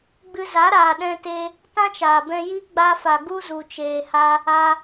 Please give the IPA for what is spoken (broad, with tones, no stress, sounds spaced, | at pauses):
ɡ͡b ɨ˧ z a˨˦ ɾ aː˨ ɗ ɛ̃˧ t e˧ | t ã˦ t͡ʃ aː˨ b ɛ̃˧ j i˦ ɡ͡b a˧ f a˨ ɡ u˦ z u˨ t͡ʃ eː˨ h a˧ | a˧